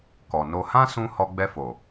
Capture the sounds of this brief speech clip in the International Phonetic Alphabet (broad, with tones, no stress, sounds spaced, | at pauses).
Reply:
k ɔ˨ n o˧ h ã˦ s ũ˧ h ɔ˧ ɡ͡b ɛ˧ f o˨